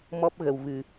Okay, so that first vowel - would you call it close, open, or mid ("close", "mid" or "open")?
mid